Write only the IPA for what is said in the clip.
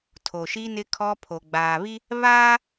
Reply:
tʰo˨ʃi˦nɪ˦ kʰɔ˦ pʰo˨ɡ͡baː˨βi˦ | βaː˦

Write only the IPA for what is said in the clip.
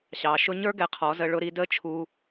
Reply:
ɕɑ˨ʃʊ˦ ɲə˞˦ ɡɛ˧qʰɔ˨˦zə˧ ɭʊ˦ɾi˦ də˦t͡ʃʰu˧

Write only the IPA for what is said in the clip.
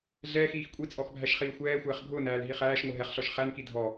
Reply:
ɮɛːxiːx kʷʼit͡sʼɔxbʱæʃχiː xʷɛːxʷɛːχ ɡʱʊːnæːlɦi χæːʃŋʷɘ ɦɛχɬɔʃ χænki dʱɔ

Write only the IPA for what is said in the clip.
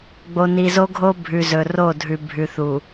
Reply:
ɡ͡bo˨ni˨zo˦ɡʱo˦ bʱʉ˨zɵ˨ro˦˨dʱʉ˨ bʱʉ˨θu˨

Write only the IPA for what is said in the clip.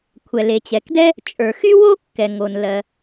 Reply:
kʷʰɛ˩le˩t͡ɕɛ˩kdɛ˥ | t͡ʃʼə˞˩xy˥wo˥ kːɛ˩ ŋo˩n lɜ˩

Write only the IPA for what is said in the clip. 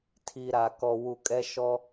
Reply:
tʰi˨ɾa˨ kɔ˨wu˨kʼɛ˦ ʃɔ˦

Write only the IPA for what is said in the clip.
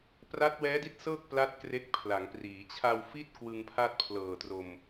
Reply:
pra˦˥t̚wɛː˦˥di˥˩t̚sɤː˥˩k̚ pla˥˩t̚kre˦˥k̚ pʰla˩˦ŋpriː˩˦ t͡ɕʰa˧wfi˥˩t̚ kwɯ˧ŋpʰa˥˩t̚pʰlɤː˨˩tro˧m

